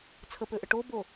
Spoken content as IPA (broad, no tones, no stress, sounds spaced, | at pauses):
t͡sʰ ə p ø ʔ ə ʈ o b o